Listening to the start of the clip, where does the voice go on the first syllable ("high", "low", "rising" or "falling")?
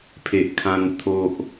low